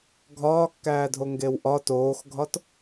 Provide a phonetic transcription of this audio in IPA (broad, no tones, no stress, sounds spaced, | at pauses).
ɡʱ ɒː kː æː dʱ o ŋ ɡ e w ʔ ɒ t oː x ɡʱ ɒ t